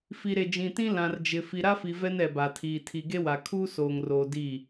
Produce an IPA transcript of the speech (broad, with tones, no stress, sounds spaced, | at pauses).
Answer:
f i˨ ɾ e˨ d͡ʒ ĩ˨ t ĩ˦ l ã˨ r d͡ʒ ɪ˨ f i˨ ɾ a˦ f i˨ v ɛ˦ n ɛ˨ b a˨ tʰ iː˨ tʰ i˨ ɡ e˦ w a˨ kʰ uː˦ s oː˨ ŋ r oː˨ d iː˦˨